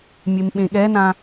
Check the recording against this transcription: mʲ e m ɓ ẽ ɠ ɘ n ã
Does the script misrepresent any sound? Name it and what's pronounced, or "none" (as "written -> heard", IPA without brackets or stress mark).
ɘ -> ɛ